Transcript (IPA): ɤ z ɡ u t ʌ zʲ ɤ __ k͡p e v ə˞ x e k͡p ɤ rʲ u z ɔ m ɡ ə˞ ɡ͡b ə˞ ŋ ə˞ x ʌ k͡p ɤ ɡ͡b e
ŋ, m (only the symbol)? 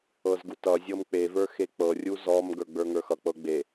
m